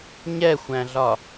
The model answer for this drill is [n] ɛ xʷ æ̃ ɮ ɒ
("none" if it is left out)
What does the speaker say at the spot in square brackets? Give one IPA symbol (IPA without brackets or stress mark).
ɲ